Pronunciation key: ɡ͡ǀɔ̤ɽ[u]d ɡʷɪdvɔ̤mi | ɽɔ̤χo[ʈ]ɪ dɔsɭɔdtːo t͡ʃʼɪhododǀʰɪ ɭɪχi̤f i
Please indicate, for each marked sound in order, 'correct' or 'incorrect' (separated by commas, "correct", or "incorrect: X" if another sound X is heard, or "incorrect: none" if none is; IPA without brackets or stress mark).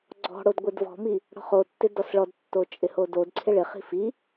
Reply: incorrect: o, incorrect: tː